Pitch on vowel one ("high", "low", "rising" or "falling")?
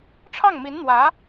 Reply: falling